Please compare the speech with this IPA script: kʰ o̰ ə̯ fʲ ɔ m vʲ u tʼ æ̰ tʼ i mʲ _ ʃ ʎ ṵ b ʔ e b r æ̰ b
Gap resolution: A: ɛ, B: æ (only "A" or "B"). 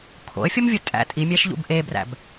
B